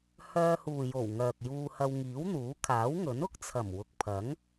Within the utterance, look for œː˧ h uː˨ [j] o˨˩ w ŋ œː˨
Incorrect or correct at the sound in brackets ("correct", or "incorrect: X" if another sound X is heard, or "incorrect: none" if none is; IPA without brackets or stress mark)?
correct